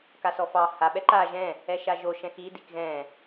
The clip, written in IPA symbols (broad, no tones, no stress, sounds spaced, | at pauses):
k a s ɔ f ɑ h a ɓ ɛ ǃ a ʒ ɛ̃ | ɛ ʃ a ʒ o ʃ ɛ̃ x i d i k ɣ ɛ̃